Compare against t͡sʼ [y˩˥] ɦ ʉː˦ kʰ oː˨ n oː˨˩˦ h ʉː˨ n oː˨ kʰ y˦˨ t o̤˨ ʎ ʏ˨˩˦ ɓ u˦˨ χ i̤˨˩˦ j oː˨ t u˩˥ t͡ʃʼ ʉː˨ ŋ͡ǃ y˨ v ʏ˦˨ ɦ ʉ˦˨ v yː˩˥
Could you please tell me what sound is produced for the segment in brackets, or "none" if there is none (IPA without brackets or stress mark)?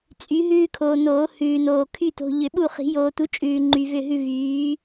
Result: y˩˥